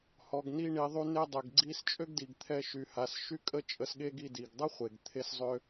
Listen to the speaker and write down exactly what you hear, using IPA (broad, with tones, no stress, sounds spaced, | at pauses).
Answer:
h ɔ˩ ɡ n i˧ ɳ i˩ ðˤ y˧ n e˧ dˤ e˩ ɡ ɡ͡ǀ i˧ s t͡ʃʼ ø˥ ɡ d i˩ ɡ t̪ʰ ɛ˧ ʃ y˩ h a˩ s ʃ y˥ kʼ ə˥ t͡ʃʼ ə˧ s ɠ e˥ ɡ i˧ d i˩ ɡ dˤ ə˥ χʷ e˩ ɡ t̪ʰ e˧ s zˤ ø˧